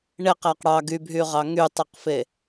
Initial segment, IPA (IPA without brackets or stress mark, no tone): ɳ